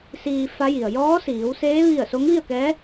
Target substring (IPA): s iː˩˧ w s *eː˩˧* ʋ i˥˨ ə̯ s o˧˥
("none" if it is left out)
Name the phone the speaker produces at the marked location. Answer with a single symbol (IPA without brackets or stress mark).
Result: eː˧˥